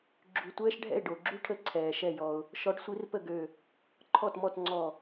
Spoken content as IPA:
ɡ͡ǁ y˧˩ tʷ ɛː˥ ʃ ɖʱ ɛ̰˥˩ ɪ̯ ɖ o˩ ɡ͡ǁ y˥˩ ʈʰ ə˧˥ ǀʰ ɛː˩ ʃ ɛ˧˩ j ɔ˩ ʊ̯ | ʃ ɔ˧˥ ɖ sʷ i˧˥ r p ə˥˩ ɡ ø˧˩ | ǃʰ ɔ˥˩ t m ɔ˥˩ t ŋ͡ǀ ɔ˧˩

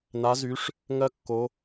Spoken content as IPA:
n a˨˥ z y˨˥ ʂ | ŋ ɜ˥ kː o˨˥

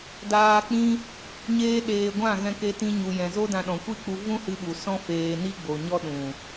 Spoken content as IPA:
d aː˧ k͡p ĩ˦ | ɲ eː˦ ɗ eː˧ ɡʷ ã˦˨ ɣ ɛ̃˧ k e˧ t ĩ˧ ɲ u˨ j ɛ̃˨ z o˦ d ã˧ ɗ ɔ̃˨ kʷ i˦ k͡p u˧ v ũ˦ h ɨ˧ ɓ u˨ s ɔ̃˦ f eː˧ n i˦ ɡ͡b o˨ ɲ ɔ˦ ɗ ũ˨

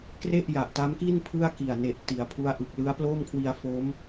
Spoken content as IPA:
k r e˥˩ ʔ j a˨˩ ʔ t a˦˥ m k i˥˩ n pʰ ɯ˥˩ a̯ k i˨˩ a̯ n e˨˩ ʔ t i˩˦ a̯ pʰ u˦˥ a̯ ʔ ɯ˨˩ k̚ l ɯ˦˥ a̯ p l oː˥˩ m kʰ w i˧ a̯ f o˦˥ m

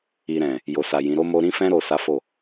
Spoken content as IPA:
i˨ ɾ ɛ̃˨ | j o˨ s a˨ j ĩ˨˦ ɾ o˦ m o˦ ɾ ĩ˧ f ɛ̃˧ ɾ o˨ s a˨˦ f o˦˨

